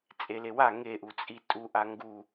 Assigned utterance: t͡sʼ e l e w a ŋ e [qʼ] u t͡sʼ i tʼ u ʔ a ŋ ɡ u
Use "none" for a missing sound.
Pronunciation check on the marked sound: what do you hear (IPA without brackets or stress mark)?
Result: ʔ